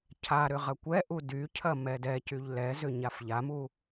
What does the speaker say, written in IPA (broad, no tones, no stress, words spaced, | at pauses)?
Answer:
cʰaɾʏ ʁɐkʷɛʔu dycʰɐ mɛdɛcyʎ lɛzʏ ɲafʎamu